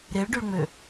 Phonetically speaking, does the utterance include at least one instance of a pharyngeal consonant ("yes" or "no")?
no